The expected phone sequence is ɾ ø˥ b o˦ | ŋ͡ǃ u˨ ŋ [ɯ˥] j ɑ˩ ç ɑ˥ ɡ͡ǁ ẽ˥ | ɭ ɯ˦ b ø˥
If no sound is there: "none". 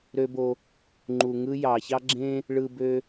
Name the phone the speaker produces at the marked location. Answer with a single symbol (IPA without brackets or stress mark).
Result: ɯ˥